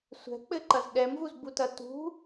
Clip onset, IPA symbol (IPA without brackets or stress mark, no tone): sʷ